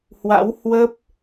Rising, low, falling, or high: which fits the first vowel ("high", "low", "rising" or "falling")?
rising